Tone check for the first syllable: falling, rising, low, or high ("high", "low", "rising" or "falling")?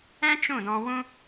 high